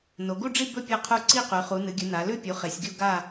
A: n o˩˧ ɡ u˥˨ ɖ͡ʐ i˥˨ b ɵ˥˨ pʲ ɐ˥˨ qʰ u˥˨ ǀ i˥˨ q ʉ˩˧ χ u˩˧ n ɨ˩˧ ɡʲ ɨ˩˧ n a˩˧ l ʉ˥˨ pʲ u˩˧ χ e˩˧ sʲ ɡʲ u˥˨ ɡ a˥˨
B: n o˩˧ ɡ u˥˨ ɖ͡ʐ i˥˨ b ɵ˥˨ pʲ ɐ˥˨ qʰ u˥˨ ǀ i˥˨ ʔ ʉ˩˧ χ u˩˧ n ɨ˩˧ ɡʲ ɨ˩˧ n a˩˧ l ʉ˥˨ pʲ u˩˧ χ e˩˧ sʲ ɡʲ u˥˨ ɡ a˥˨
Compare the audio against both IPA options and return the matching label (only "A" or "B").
A